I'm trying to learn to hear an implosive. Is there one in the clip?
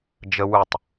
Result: no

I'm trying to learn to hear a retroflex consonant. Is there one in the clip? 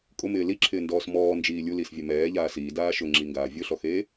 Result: no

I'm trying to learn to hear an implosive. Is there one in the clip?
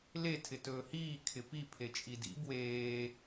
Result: no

